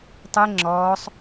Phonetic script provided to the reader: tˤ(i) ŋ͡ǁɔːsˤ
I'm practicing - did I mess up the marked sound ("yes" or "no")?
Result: yes